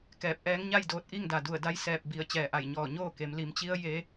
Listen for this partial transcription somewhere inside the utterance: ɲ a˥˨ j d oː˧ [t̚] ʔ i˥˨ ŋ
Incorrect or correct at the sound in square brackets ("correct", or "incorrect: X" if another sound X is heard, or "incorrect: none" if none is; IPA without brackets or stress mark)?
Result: correct